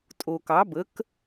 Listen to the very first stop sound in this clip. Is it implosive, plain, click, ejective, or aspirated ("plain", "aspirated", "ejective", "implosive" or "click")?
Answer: ejective